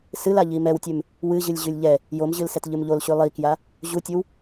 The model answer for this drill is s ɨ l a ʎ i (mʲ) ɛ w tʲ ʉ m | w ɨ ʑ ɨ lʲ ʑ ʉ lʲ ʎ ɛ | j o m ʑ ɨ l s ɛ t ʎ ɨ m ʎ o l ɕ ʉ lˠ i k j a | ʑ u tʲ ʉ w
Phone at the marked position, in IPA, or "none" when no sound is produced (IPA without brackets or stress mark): m